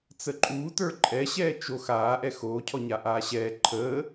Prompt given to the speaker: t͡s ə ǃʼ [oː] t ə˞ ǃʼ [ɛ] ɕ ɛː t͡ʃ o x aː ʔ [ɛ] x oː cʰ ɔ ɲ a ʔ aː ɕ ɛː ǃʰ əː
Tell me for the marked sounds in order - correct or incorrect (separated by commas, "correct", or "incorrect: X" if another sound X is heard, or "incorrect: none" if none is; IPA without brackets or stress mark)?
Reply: incorrect: uː, correct, correct